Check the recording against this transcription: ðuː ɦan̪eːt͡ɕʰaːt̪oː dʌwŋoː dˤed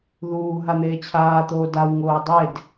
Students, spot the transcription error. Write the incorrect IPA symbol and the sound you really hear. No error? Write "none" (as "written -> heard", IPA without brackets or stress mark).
ʌ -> a